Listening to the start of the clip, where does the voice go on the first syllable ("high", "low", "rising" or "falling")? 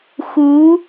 rising